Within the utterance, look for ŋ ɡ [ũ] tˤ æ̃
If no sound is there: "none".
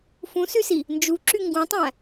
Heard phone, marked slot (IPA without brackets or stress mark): ũ